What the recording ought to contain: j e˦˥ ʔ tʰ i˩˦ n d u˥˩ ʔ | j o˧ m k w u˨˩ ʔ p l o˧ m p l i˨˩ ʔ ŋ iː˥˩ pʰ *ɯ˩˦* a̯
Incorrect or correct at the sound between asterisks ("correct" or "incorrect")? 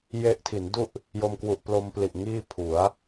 incorrect